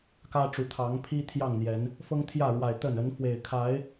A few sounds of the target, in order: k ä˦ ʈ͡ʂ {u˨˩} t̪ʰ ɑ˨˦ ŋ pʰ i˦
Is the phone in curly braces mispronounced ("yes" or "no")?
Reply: no